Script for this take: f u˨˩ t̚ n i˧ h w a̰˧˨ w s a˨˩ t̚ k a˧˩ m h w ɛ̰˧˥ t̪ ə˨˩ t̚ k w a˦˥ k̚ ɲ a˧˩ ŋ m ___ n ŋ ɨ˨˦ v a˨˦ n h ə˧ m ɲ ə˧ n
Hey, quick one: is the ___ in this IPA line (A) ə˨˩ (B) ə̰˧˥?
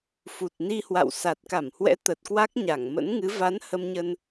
B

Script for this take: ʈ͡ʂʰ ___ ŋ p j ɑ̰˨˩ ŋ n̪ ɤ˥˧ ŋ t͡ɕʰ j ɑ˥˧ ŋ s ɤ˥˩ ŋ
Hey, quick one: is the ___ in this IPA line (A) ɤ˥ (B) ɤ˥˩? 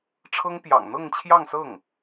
A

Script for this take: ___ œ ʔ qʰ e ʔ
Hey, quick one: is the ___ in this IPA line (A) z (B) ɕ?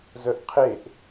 A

